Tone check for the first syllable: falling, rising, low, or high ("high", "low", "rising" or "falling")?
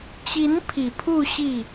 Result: rising